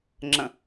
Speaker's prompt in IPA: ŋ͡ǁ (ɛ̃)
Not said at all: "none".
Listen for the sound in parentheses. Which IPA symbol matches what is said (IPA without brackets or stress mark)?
ə̃